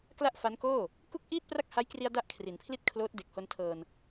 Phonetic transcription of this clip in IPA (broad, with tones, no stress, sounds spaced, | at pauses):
k l a˥˩ ʔ f a˦˥ n k oː˥˩ | k u˥˩ k̚ ʔ iː˥˩ t̚ p r a˥˩ k̚ h a˦˥ j k r i˧ a̯ d a˥˩ ʔ kʰ r i˩˦ n pʰ l i˥˩ t̚ kʰ l oː˦˥ t̚ d e˨˩ k̚ h o˧ n tʰ ɤː˧ n